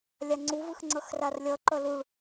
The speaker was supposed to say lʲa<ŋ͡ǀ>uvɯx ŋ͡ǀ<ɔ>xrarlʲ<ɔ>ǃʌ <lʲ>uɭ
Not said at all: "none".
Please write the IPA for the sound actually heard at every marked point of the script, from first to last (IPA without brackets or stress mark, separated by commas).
ŋ͡ǀ, ʌ, ʌ, l